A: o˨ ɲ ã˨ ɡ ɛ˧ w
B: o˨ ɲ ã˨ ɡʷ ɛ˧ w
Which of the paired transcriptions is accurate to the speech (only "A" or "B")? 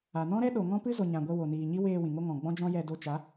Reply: B